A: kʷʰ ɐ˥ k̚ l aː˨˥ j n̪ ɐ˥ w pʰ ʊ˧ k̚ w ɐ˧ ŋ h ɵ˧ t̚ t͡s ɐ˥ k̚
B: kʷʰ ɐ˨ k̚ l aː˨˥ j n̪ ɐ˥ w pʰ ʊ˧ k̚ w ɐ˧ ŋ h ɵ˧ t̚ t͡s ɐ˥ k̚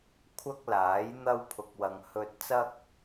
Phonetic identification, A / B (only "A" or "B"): A